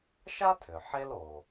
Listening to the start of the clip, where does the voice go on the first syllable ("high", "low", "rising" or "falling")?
high